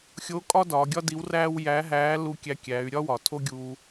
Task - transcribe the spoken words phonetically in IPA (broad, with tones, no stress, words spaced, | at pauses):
xʲoː˧˥kʼɒ˥ dɒː˩˧ɡʲɒ˥di˧˥wræː˥w jæː˧˥ɦæː˧˥ lu˧kʲæ˧ kʲæ˩˧y̯ɾʲɒ˥ wɒ˩tʰo˥ɡʲuː˧